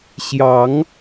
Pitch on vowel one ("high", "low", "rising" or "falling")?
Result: rising